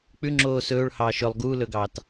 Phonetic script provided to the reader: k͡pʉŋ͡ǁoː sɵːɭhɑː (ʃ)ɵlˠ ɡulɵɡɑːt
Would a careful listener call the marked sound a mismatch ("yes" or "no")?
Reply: no